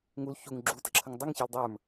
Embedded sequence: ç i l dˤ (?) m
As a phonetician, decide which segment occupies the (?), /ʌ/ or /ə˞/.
ə˞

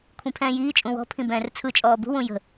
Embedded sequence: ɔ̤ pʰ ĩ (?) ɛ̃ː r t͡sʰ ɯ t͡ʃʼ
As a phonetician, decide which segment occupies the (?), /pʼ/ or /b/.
b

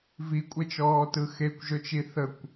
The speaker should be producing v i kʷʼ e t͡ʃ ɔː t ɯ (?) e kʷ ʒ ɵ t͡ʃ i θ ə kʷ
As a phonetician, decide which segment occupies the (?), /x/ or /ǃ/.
x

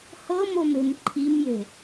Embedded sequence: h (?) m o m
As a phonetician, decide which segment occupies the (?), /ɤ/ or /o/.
ɤ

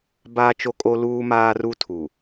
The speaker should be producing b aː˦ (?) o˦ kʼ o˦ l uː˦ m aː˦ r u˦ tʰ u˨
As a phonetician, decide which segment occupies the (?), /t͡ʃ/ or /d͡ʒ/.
t͡ʃ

